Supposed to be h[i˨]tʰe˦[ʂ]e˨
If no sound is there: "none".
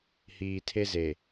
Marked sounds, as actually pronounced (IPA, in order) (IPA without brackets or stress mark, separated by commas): iː˨, z